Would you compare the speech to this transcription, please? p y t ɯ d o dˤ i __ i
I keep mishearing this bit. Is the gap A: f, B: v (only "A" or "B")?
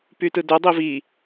B